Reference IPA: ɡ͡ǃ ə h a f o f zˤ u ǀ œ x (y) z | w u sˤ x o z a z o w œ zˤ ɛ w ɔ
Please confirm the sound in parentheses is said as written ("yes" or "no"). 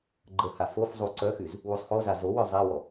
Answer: yes